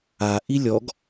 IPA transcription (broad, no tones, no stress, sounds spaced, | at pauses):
a ʔ i lʲ ɔ ɡ